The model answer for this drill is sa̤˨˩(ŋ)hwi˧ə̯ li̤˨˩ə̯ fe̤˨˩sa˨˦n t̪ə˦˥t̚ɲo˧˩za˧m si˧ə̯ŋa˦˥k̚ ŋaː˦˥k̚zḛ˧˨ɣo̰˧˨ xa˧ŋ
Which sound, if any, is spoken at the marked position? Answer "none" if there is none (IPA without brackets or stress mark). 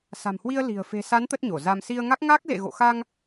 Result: m